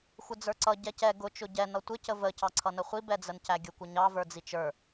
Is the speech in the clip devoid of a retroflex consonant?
yes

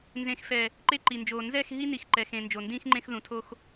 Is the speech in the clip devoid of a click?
no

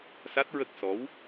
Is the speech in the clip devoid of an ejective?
yes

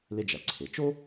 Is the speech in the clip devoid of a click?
no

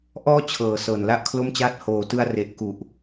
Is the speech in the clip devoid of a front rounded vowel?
yes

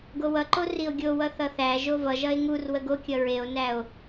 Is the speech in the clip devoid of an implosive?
yes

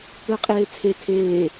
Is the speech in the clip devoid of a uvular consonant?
no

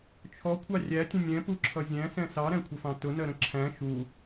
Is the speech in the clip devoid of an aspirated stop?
no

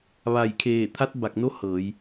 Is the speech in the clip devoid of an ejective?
yes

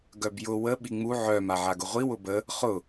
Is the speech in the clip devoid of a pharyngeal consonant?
no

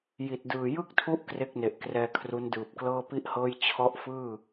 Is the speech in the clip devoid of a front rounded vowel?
yes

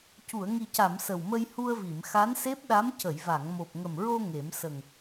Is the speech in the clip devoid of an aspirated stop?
yes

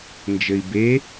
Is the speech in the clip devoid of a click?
yes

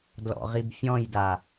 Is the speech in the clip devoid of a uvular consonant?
no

